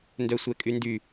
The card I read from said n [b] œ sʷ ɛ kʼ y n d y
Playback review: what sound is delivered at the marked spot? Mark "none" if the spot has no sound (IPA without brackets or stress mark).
d